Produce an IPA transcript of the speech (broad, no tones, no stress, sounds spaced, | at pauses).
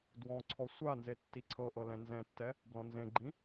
d w ɔ̃ ǀʰ ɔ sʷ a n z e tː i ǀʰ ɤ ʔ ɤ l ɛ̃ n z ɛ̃ tː ɛ | b l ɔ̃ n z ẽ ɡ͡ǃ ĩ